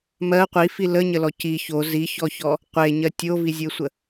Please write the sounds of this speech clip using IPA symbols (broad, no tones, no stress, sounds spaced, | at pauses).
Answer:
m ɜ qʷ i f i l ə ɲ ə l ɔ c i ç o z i ç ɔ ç ɔ | qʷ e ɲ ɜ tʲ o v i zʲ e sʷ ə